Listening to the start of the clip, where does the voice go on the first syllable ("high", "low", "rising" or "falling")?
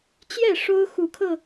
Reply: falling